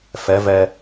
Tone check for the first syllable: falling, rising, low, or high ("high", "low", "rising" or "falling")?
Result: rising